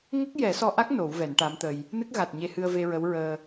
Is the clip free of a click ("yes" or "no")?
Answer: yes